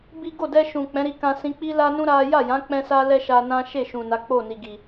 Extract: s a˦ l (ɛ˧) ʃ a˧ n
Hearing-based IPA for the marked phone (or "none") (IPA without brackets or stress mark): ɛ˦